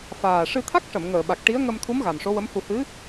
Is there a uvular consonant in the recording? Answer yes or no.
no